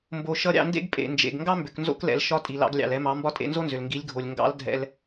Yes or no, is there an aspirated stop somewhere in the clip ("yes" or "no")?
no